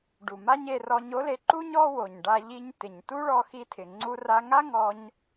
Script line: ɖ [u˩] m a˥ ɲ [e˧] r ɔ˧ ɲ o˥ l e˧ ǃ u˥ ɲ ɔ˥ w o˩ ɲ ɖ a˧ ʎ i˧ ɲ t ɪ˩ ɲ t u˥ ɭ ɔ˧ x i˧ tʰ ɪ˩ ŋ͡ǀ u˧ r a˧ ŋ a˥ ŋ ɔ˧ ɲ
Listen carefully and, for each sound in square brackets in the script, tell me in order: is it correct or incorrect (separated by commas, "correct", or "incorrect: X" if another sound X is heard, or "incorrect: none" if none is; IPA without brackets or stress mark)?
correct, correct